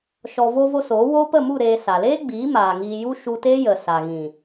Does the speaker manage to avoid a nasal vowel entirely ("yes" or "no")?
no